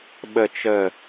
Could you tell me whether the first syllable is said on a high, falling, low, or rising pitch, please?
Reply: low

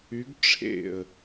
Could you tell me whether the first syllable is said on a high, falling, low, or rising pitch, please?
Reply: rising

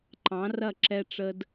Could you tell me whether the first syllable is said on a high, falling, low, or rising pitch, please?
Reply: rising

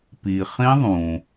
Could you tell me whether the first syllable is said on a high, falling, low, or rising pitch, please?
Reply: low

